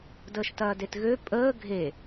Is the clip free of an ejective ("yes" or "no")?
no